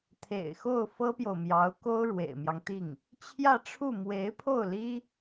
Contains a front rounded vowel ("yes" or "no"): no